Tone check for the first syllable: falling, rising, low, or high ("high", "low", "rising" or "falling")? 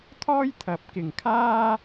high